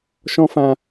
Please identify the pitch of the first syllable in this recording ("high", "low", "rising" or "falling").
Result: high